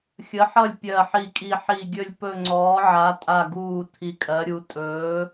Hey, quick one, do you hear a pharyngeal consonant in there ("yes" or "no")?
yes